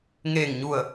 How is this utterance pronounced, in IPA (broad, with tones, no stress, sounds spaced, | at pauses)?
ŋ eː˧˩ ŋ ɲ u˧˩ ə̯